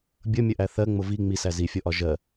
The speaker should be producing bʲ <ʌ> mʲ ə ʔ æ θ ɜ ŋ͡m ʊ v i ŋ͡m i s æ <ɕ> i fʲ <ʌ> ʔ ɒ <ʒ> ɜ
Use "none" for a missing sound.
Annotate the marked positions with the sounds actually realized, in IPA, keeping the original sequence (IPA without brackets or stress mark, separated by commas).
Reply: ʌ, z, ɔ, ʒ